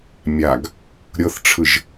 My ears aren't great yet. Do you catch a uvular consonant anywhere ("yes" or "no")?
no